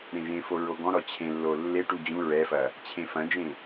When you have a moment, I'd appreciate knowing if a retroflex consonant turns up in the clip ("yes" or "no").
yes